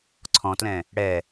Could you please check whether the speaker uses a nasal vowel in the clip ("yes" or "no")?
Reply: yes